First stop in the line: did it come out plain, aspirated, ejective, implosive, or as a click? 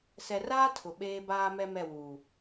aspirated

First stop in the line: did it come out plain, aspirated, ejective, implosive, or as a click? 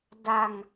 plain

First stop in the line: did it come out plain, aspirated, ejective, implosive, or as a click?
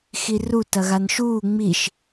plain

